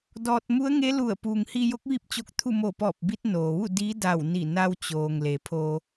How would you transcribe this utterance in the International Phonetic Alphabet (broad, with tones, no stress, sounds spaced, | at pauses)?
d ɔː˧ t̚ m u˧˥ ə̯ ŋ e˧˥ l u˧˩ ə̯ p uː˩ ŋ h i˧ j o˧˥ k̚ ʋ i˥˨ p̚ t͡ɕ o˧˥ k̚ t̪ʰ u˥˨ m o˧˩ p ɔː˧˩ p̚ b i˧ t̚ n oː˩ ʋ u˥˨ d i˧˥ d a˧˩ w n i˧˩ n a˧ w t͡ɕ oː˩ ŋ l e˩˧ pʰ oː˧